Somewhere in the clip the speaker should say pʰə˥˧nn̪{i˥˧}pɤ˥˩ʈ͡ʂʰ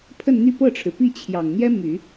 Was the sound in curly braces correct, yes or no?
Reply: no